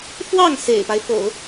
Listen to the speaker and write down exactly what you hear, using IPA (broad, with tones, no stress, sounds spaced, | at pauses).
f w ɑ˥˩ ŋ s ḛ˨˩ ɪ̯ p a˦ ɪ̯ f o̰˨˩˦ ʊ̯